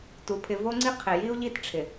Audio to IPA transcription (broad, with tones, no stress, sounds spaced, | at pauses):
t u˨ pʰ ɪ˨ v o˦ ŋ͡ǀ i˦ qʰ ɪ˨ j i˦ u̯ ʎ i˦ t ʈ͡ʂʰ ɪ˨